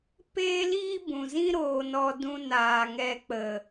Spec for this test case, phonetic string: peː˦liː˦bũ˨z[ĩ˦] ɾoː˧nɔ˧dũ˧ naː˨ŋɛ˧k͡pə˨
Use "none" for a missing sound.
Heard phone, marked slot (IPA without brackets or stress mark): ĩ˦